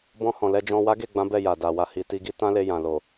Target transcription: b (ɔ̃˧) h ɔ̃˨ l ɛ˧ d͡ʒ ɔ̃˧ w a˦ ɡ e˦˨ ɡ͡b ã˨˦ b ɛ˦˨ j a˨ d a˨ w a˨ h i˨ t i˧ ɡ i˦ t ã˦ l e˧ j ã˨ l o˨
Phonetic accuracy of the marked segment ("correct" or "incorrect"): correct